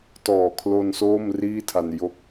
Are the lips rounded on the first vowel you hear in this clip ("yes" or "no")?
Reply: yes